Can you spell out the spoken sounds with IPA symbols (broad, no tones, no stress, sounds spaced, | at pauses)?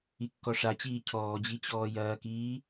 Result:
i kː ɔ ʂ a t͡ɕ iː cʰ ɔː d͡ʑ i t͡ɕ ɔː j ɐː k iː